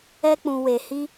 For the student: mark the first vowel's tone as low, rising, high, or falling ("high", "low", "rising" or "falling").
high